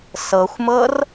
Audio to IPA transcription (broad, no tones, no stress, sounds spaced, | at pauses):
s ɤ xʷ m ɤ r